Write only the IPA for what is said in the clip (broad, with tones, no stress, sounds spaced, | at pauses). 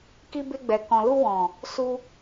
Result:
k i˧ b e˧ ɡ͡b ɛ˨ k ɔ̃˨ l u˧ w ɔ̃˨ | s u˧